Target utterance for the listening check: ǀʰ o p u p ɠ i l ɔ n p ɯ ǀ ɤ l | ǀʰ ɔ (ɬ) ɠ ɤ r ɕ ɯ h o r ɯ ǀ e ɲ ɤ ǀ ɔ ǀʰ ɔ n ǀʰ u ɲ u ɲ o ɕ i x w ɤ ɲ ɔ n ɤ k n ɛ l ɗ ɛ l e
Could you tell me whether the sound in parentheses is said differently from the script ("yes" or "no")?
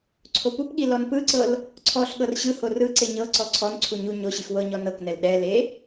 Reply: no